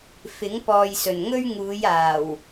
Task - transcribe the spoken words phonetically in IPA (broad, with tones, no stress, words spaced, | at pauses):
fɪ˨˥ŋpɔː˨jsɵ˨˩nŋɵ˥ɥ ŋuː˨˧jaː˨˩w